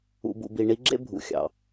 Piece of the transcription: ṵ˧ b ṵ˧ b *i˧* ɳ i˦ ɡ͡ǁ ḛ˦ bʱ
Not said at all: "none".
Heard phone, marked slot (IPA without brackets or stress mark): i˧